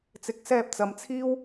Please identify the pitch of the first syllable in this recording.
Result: rising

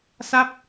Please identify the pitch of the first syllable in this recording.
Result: falling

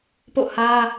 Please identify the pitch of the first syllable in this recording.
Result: falling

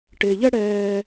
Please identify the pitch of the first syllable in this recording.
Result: low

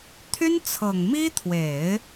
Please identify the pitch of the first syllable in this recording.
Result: high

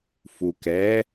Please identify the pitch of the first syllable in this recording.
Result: low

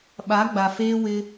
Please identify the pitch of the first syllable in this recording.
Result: rising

